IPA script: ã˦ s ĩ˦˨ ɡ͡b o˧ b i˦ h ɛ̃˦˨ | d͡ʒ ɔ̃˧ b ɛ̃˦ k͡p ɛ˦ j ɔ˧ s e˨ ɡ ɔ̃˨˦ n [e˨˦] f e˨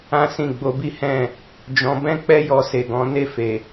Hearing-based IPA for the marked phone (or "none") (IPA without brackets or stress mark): e˦˨